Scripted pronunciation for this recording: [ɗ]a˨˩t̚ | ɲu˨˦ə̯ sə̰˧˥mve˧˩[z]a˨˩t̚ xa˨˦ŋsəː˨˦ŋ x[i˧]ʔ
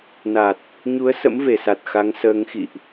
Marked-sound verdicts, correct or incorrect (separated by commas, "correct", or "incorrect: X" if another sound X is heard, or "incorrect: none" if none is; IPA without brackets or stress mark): incorrect: n, incorrect: s, incorrect: ḭ˧˨